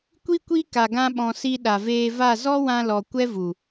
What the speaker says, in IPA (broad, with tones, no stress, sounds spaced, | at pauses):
kʷ i˦ kʷ i˦ k a˧ ɡ ã˦ ɓ ɔ̃˧ s i˧ ɗ a˨ v eː˧ v a˦˨ z ɔ˦ w ã˧ l ɔ˨ kʷ ɛ˦ v u˨